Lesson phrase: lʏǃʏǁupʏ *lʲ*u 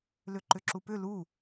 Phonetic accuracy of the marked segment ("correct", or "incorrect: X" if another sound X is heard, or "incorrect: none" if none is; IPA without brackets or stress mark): incorrect: l